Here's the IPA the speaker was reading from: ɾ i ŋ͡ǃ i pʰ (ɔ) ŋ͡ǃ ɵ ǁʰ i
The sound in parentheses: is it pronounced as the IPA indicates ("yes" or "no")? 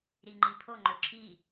no